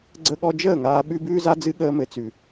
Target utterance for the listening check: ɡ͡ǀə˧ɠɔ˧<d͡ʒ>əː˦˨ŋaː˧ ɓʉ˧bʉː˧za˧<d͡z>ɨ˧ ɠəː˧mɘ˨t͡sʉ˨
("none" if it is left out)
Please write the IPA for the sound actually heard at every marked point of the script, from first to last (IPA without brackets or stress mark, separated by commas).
d͡ʒ, d͡z